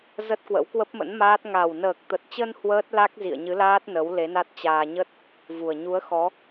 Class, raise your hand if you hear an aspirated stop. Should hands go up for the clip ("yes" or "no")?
no